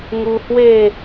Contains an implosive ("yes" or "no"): no